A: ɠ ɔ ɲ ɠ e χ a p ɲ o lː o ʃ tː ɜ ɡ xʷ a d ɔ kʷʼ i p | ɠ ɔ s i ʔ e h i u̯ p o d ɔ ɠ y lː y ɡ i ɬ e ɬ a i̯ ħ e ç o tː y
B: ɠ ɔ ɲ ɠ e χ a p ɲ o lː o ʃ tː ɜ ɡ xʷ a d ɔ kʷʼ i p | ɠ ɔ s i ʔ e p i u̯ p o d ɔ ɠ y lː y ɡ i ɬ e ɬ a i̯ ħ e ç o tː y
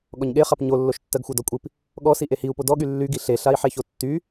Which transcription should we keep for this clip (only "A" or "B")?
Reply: A